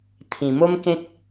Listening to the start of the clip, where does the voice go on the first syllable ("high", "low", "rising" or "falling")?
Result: low